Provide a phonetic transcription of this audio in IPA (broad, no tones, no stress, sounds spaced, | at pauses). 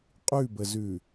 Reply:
qʼ ʉ b ə z ʉ